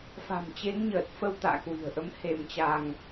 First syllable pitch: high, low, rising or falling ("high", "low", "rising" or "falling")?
low